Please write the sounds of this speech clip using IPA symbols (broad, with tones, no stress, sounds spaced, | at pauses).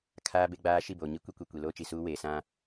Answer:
kʰ aː˦ b e˦ ɡ͡b aː˦ ʃ i˦˨ b oː˨ ɲ i˦ kʷ i˦ kʷ e˨ kʷ i˨ l oː˦ t͡ʃ i˨ s uː˦ w eː˨ s ã˦